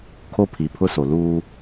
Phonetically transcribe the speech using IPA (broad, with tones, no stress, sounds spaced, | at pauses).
kʰ o˦˨ pʰ i˨ pʰ ʊ˦ s o˨ l uː˦